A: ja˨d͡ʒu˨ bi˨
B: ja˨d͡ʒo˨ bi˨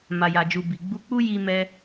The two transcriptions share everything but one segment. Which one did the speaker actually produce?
A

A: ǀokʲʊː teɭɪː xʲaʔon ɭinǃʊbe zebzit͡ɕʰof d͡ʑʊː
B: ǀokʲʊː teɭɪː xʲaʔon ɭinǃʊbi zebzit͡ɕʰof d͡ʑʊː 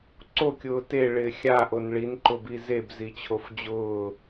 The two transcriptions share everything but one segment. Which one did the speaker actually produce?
B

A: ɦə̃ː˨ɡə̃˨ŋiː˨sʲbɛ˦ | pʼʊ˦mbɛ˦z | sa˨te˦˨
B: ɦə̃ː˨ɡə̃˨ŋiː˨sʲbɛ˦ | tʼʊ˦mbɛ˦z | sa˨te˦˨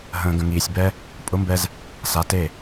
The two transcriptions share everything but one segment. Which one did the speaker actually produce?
A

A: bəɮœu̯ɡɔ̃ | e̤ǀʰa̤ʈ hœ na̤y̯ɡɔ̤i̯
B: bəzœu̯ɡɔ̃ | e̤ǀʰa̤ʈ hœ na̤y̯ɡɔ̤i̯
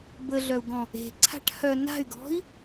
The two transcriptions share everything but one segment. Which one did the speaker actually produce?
A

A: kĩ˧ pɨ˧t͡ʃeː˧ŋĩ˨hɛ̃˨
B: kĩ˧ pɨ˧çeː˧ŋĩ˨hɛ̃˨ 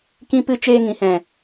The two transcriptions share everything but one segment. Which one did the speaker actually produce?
A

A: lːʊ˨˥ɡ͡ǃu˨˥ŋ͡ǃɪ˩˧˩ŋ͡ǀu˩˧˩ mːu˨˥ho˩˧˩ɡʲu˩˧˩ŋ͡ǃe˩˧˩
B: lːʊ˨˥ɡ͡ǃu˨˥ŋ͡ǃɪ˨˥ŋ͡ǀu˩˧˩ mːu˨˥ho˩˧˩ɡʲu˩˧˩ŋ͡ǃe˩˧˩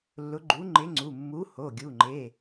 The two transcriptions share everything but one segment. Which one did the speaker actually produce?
B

